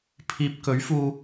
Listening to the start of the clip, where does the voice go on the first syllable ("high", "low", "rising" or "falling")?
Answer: low